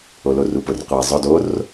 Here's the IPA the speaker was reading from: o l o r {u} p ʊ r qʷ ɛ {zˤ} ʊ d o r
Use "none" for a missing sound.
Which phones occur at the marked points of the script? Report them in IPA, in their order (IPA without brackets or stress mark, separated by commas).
u, zˤ